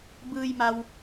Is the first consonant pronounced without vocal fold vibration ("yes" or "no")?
no